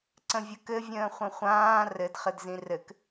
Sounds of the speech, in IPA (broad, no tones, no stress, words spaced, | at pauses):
ǀə̃vʲəkɘ vʲə̃ːχʷə̃χʷãː rɘd χɘdzĩrɘk